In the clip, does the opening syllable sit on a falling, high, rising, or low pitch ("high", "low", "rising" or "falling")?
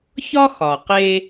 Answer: high